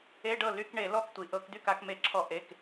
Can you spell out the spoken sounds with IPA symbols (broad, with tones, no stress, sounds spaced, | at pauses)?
e˧˥˧ ɖ ɤ˥˩ l y˧˥˧ k ɳ e˧˩˧ l ɔ˥˩ k tʷ i˩ ʔ ɤ˧˩˧ k d̪ y˥˩ k a˧˩˧ k m e˧˩˧ ǁʰ ɔ˧˩˧ ʔ e˩˧˩ k